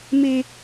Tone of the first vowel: high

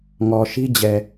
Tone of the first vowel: low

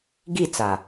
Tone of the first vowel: falling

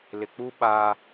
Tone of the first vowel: low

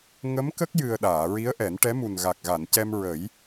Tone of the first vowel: rising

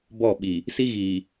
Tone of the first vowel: falling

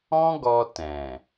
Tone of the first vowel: high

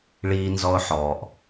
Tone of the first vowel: high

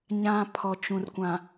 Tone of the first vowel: low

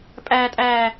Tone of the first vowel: high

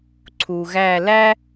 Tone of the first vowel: low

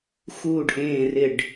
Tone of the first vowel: falling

